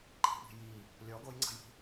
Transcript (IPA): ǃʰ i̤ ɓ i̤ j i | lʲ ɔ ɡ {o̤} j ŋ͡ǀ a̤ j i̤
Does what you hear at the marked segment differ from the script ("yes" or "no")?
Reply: yes